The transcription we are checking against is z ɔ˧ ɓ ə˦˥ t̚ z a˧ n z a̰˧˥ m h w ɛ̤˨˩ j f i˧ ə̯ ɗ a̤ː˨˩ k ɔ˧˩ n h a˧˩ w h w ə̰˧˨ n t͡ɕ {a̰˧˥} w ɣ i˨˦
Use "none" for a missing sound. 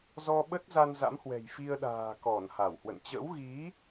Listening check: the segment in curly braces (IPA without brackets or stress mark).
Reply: ə̰˧˥